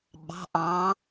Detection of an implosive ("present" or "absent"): present